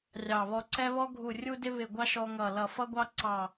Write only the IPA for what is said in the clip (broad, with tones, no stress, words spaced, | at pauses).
rʲɑ˧˩βɔ˦ ǀɛ˦βɔ˦ ɡʱu˧˩rʲu˦dɪ˦ βɪ˧˩ɡʷɑ˦ ʃɔ˦ŋʌ˧˩lʌ˧˩ fʌ˦ɡʷɑ˦ ǀɑ˧˩